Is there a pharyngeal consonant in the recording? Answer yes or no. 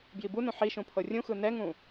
yes